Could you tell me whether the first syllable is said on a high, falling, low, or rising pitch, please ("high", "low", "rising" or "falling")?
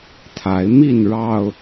rising